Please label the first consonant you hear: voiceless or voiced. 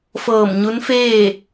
voiceless